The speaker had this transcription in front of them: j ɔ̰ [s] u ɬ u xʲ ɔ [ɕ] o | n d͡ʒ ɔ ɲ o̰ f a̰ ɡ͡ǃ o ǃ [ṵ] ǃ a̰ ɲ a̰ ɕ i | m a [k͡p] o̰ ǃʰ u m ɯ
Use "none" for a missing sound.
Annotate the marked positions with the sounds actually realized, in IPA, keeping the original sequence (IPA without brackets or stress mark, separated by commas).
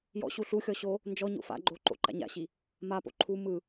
ɕ, ɕ, o̰, p